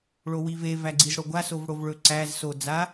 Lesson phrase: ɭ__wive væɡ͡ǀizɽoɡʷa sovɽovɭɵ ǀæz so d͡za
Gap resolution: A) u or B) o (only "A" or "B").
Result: B